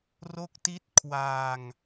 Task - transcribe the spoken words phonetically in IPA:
r o˦˥ k̚ t i˦˥ t̚ kʰ w aː˧ ŋ

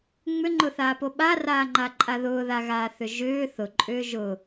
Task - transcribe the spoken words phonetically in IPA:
ŋ͡m ʏ ŋ͡ǃ ʊ θ aː p o ɓ a r aː ŋ͡ǃ a ǃʼ a ð ʊː ð a ɣ aː θ ʏ ʒ ʏː θ ʊ ǃʼ ʏː ʒ ʊ

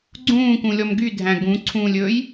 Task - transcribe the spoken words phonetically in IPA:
ɡ͡ǀ ũː k ũ lʲ ɔ m ɡ y dʱ æ̃ ɡ ũ ǀʰ ũː lʲ ɵ j

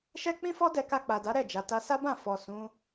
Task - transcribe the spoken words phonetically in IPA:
ʃ ɛ˦ k͡p ĩ˦ f ɔ˦ d ɛ˧ k a˧ k͡p a˨ d a˨˦ ɾ ɛ˦˨ d͡ʒ a˨ t a˧ s a˦ b ã˦˨ f ɔ˨ s ũ˨˦

